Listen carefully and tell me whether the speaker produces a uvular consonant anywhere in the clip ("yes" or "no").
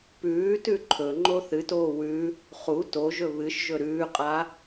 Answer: yes